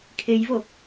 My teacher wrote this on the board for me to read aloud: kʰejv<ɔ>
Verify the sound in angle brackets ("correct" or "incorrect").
incorrect